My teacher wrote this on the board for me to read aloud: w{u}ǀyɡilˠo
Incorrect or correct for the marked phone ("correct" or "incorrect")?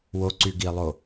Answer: incorrect